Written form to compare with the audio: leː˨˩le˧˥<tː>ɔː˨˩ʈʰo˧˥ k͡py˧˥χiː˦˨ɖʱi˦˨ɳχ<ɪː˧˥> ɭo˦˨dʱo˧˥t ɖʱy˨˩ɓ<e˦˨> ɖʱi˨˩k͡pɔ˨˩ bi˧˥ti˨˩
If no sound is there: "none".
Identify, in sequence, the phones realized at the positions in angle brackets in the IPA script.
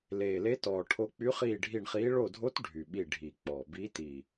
t, iː˧˥, i˦˨

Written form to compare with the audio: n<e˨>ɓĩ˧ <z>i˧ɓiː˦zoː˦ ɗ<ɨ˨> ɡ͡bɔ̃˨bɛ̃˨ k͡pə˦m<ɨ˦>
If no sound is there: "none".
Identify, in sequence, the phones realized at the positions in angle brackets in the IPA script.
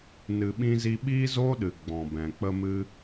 ɨ˨, z, ɨ˨, ɨ˦

